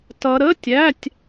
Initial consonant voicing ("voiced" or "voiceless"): voiceless